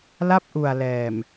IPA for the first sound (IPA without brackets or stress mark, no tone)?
l